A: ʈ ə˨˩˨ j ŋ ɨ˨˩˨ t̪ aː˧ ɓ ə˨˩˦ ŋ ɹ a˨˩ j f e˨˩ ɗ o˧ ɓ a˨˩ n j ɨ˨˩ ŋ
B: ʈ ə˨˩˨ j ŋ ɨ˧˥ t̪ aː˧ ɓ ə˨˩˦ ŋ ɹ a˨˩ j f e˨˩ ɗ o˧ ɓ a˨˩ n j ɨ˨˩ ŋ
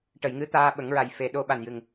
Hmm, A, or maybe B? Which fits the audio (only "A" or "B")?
B